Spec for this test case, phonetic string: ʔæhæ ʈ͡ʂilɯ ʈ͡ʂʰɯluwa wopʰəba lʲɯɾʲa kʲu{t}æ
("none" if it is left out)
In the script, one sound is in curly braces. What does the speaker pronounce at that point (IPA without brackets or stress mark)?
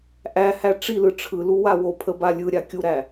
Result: ɾ